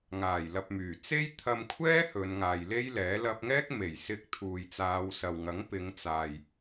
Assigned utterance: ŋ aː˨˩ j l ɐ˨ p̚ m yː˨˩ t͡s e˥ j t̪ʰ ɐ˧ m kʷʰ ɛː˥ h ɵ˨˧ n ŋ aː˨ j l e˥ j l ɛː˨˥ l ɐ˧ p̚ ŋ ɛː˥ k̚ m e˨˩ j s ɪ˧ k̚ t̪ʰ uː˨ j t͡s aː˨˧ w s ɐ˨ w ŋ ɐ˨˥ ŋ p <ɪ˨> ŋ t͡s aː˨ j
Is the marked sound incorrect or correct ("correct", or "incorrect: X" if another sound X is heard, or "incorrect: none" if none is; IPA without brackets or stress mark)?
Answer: incorrect: ɪ˨˧